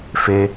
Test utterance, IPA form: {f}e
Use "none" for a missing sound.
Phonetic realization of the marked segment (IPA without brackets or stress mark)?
f